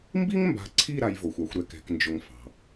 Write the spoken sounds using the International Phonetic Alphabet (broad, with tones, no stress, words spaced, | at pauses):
mbi˦ŋmba̤˨ǀʰi˦˨ ɾa˦jvo˨xʷa˦xʷɾɛ˦˨k ɛ̤˦knd͡ʒʊ˦ŋfɑ̤˨